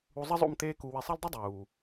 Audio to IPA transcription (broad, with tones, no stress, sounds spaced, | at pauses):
u˧ zˤ ɘ˦ zˤ o̰˦˨ m t̪ eː˦ k u˧ w i˧ sˤ ɛ˦ l dˤ ɨ˦ dˤ uː˨